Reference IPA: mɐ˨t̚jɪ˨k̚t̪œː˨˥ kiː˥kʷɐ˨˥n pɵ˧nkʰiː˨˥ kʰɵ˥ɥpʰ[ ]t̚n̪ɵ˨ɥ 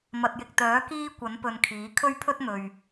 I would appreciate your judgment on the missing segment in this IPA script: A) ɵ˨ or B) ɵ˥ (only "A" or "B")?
B